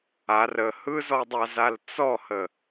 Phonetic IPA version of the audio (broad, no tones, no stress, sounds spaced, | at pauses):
a r ə h ɯ z ɔ dˤ a z a l t͡s ɔ h ə